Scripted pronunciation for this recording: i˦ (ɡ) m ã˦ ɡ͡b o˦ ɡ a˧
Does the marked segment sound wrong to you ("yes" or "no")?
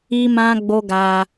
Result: yes